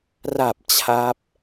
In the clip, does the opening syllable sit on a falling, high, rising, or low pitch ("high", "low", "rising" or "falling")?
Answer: low